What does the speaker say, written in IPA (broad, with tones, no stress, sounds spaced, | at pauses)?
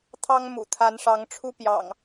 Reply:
t̪ʰ ɑ˦ ŋ m ṵ˨˩ t̪ʰ a˨˦ n ʂ ɑ˨˦ ŋ ʈ͡ʂʰ u˦ p j ɑ̰˨˩ ŋ